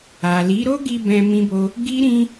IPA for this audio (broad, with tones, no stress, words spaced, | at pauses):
a˨li˨˦ɾo˦ɡi˧ bɛ̃˧ mĩ˦bo˦ | ɡi˦ɾĩ˦